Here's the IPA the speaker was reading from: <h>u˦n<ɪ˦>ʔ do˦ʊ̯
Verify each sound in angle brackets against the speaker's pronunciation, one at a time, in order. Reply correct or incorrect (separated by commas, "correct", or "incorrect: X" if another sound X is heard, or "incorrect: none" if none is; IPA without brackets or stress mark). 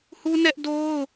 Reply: correct, incorrect: ɛ˦